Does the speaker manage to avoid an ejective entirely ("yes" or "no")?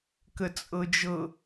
no